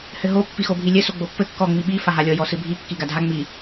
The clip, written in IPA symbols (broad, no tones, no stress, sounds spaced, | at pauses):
h ɘ ɦ o pː i x o bʱ i lʲ ɘ s o ɡ͡b o pː ɘ kː ɔ ŋ͡m i ɓ i f a ɦ a lʲ ɔ j ɔ s ɨ bʱ i kː i ɡ a dʱ a ŋ͡m i